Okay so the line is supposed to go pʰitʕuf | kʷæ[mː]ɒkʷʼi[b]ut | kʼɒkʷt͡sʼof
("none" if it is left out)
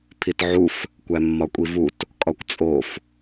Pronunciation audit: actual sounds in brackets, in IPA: mː, v

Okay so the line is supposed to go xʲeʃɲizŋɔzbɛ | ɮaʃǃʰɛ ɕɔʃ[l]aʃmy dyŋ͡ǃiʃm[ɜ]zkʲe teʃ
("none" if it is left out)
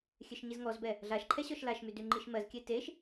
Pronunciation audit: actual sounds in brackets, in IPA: l, ɜ

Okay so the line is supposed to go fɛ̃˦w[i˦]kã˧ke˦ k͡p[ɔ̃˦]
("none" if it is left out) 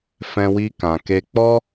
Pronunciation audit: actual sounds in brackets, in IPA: i˦, ɔ˦

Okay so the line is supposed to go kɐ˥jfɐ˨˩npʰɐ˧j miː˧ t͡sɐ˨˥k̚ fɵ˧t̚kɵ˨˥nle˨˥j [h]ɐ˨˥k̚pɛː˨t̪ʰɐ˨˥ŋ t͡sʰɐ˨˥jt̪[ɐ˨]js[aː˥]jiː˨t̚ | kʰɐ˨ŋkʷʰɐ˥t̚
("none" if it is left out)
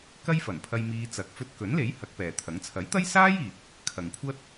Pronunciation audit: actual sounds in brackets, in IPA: h, ɐ˥, aː˥

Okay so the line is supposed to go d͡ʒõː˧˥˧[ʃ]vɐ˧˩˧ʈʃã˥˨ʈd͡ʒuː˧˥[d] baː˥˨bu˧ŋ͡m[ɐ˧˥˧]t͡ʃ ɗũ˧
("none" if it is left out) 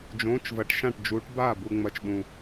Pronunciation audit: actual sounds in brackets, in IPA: t͡ʃ, ʈ, ɐ˧˥

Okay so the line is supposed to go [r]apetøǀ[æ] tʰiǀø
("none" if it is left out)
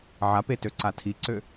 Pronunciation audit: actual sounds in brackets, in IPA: ʕ, a

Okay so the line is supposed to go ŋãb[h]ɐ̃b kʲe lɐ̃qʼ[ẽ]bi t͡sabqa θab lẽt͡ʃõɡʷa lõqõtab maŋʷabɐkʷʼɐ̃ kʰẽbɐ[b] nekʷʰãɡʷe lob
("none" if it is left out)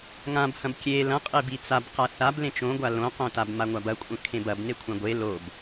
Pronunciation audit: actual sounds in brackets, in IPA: h, e, b

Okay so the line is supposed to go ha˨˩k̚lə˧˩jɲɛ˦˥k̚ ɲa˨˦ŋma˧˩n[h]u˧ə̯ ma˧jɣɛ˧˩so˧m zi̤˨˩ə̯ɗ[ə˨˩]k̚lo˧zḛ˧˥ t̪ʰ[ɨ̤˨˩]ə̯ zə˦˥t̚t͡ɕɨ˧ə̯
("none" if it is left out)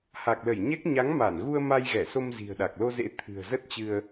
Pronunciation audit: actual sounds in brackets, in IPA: ɣ, a˨˩, ɨ̤˨˩

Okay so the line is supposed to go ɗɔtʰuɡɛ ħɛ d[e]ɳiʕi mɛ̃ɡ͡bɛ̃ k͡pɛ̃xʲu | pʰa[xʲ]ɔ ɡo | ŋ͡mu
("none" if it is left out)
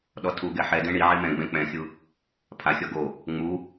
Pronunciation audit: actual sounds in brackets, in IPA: ẽ, xʲ

